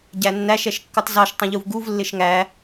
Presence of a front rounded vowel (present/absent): absent